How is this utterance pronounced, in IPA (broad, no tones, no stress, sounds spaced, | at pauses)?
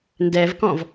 n d ɛ v k ɔ̃ v